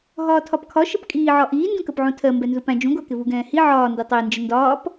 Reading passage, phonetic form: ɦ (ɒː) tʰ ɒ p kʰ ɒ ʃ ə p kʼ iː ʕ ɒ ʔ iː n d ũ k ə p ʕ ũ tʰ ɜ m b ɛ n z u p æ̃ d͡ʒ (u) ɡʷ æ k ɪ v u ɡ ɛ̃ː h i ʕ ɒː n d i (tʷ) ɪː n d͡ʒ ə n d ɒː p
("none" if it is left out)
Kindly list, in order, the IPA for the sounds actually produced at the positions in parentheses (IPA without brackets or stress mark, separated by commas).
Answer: ɒː, ũ, tˤ